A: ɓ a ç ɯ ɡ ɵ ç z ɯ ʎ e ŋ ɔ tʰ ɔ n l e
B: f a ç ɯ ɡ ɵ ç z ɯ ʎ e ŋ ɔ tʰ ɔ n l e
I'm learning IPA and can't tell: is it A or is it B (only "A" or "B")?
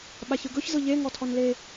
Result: A